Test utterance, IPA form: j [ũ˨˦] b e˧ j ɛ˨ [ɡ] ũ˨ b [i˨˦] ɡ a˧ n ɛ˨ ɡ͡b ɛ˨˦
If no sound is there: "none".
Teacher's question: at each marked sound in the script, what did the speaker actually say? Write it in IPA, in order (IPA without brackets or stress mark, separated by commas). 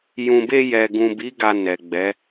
ũ˨, ɡ, i˨˦